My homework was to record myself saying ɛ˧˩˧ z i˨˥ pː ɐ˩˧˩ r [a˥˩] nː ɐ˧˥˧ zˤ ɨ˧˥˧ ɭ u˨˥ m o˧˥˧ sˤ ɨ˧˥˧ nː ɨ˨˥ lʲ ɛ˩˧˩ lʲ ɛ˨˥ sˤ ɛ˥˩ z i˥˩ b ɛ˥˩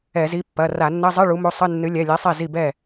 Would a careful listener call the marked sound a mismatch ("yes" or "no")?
yes